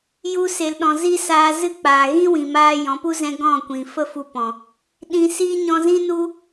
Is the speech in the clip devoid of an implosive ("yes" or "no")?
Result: no